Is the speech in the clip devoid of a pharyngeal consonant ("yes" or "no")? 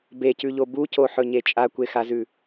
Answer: no